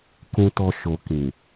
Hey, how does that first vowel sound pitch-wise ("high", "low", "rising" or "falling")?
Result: low